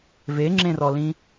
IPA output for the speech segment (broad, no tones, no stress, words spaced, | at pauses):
veŋ͡ǁẽrɔlĩ